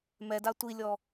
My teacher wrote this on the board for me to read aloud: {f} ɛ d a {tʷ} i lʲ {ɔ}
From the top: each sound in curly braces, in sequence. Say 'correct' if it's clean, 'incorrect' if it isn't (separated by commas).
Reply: incorrect, correct, correct